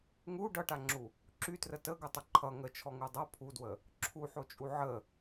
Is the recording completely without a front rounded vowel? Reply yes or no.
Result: no